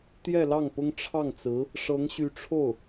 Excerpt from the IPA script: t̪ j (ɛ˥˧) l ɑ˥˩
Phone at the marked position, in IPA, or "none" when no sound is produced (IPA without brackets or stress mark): ɛ˥˧